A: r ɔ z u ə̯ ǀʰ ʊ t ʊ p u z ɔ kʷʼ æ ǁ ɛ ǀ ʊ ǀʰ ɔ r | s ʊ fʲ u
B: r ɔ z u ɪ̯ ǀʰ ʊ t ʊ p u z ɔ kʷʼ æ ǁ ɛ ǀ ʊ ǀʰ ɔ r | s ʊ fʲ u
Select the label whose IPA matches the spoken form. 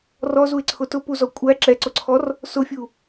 B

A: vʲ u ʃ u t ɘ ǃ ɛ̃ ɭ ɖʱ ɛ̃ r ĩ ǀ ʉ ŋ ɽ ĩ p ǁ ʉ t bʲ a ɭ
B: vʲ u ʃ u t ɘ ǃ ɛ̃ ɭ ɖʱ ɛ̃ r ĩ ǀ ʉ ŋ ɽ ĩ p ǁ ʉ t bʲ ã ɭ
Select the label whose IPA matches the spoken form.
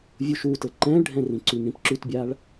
A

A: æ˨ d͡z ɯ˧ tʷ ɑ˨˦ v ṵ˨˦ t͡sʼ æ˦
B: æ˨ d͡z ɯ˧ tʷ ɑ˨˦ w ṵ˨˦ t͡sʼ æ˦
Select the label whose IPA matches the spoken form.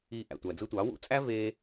B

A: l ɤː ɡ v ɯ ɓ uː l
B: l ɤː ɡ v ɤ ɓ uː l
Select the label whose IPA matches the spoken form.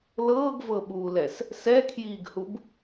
B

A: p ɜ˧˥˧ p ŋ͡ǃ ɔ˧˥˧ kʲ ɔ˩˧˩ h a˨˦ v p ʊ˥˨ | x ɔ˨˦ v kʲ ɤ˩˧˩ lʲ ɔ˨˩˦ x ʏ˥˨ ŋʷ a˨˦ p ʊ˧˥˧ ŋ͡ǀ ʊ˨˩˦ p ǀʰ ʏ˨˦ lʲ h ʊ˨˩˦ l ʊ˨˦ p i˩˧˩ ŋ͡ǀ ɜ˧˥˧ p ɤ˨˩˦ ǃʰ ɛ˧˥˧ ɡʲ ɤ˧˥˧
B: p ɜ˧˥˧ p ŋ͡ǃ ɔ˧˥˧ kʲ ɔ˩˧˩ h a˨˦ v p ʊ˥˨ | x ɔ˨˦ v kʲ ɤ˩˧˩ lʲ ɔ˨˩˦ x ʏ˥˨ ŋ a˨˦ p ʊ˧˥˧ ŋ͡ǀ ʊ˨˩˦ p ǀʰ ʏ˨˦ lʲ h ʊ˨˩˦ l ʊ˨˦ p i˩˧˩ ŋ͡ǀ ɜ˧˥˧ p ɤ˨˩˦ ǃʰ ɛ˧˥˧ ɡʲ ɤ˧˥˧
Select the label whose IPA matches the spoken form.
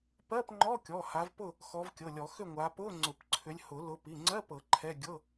A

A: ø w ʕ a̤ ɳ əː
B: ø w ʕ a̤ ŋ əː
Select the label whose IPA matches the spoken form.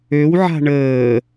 A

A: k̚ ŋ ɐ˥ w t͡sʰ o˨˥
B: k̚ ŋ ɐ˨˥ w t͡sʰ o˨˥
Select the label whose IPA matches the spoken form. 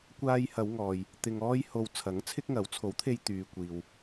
B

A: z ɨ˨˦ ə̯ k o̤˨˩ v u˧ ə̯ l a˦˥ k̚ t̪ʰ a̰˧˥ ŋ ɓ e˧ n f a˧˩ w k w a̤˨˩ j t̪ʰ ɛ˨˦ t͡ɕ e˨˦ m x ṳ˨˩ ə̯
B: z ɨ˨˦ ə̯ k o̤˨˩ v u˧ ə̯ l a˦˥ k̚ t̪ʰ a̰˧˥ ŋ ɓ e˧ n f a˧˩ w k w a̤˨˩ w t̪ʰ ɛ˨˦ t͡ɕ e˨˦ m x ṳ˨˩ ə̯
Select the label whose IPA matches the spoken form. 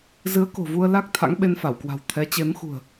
B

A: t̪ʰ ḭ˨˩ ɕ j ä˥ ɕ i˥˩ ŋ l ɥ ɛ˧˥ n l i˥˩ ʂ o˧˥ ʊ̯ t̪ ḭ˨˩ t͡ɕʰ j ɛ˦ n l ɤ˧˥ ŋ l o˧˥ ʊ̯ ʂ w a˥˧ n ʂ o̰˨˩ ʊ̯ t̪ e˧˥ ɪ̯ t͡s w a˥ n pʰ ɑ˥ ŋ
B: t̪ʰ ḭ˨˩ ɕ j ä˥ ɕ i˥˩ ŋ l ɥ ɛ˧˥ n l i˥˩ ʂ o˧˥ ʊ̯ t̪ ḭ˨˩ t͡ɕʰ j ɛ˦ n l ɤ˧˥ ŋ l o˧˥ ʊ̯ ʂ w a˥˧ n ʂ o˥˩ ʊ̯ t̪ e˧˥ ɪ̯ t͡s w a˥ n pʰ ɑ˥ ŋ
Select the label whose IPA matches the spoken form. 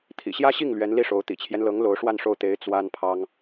B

